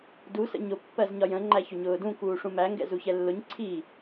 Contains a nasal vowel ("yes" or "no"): yes